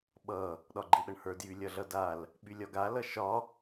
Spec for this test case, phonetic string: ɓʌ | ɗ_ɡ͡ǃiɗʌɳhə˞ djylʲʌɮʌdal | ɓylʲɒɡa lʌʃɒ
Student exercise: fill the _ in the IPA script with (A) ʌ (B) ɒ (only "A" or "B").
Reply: B